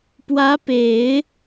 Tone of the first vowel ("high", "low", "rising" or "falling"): rising